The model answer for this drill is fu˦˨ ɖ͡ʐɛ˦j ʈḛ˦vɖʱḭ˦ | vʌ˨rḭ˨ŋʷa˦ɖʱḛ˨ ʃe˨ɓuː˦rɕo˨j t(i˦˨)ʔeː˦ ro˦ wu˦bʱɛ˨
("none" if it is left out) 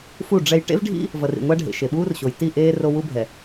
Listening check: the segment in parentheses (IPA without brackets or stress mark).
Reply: i˦˨